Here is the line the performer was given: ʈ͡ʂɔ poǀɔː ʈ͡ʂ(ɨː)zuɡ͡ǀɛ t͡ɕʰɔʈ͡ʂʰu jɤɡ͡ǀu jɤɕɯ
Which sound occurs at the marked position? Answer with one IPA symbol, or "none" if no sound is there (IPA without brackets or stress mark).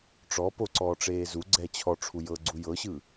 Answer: eː